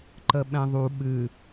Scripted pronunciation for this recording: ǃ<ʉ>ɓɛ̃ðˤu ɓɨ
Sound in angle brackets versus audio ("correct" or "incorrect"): incorrect